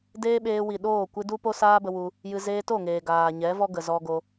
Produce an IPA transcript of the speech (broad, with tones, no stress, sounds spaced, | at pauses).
d eː˦ ɓ eː˧ w i˨ ɗ oː˦˨ kʷ ɨ˧ d u˦ p o˦ s aː˦ b ə˧ w u˧ | j ɨ˧ z eː˧ t o˦˨ ŋ eː˨ ɡ aː˨ ɲ ɛ˨˦ v ɔ˦ ɡ ə˨ z ɔ˧ ɡ o˧